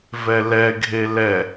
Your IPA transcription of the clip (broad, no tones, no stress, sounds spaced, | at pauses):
v ɛ l ɛ ɡʱ e l ɛ